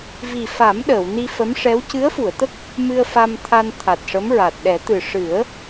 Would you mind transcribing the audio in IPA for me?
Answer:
v i˨˩ f a˨˩˦ m ɗ əː˨˩˨ w n i˧ f ə˧˥ m ʂ ɛ˧˥ w c ɨ˧˥ ə̯ f u˨˩˨ ə̯ t̪ ə˦˥ k̚ | m ɨ˧ ə̯ f a˧ m t̪ʰ a˧ n t̪ʰ a˨˩ t̚ ʂ ə˧˥ m ɹ a˨˩ t̚ ɗ ɛ˨˩˦ t̪ ɨ˨˩ ʂ ɨ˨˩˦ ə̯

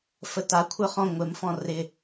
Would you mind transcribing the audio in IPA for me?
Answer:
f ə t a kʷʰ ə˞ χ ɔ̃ ŋʷ ɪ m f ɔ̃ r ɪ

